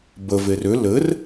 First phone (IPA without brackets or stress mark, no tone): b